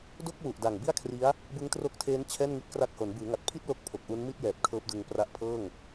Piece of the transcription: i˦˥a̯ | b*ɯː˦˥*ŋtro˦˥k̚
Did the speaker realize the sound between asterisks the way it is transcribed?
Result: no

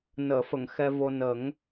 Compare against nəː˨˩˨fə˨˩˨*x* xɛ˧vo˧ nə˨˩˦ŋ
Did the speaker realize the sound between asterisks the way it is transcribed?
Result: no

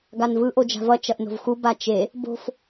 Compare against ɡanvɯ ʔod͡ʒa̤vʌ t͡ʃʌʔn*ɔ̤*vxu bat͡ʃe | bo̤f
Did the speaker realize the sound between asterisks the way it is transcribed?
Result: no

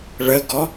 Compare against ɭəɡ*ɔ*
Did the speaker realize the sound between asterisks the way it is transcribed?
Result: yes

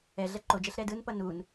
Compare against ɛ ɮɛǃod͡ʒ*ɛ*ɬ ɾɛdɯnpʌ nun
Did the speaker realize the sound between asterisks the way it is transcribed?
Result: yes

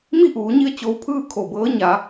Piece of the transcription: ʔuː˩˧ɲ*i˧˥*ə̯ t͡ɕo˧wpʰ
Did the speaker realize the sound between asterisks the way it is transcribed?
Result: no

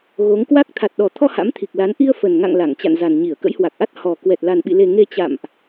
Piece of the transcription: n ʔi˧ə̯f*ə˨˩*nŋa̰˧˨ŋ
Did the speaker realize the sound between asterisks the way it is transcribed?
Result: yes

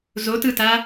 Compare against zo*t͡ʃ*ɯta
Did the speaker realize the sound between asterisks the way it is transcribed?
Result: no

